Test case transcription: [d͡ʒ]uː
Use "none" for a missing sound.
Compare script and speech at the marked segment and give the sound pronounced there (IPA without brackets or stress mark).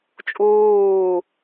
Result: t͡ʃʼ